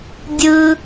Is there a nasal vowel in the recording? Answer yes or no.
no